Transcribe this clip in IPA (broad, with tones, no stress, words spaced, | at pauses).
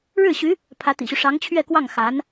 ɻɻ̩˥˩ɕy˧˥ | pʰä˧˥t̪ḭ˨˩ɕy˦ ʂɑ˧˥ŋt͡ɕʰɥɛ˥˧kwɑ˥˩ŋ xa˧˥n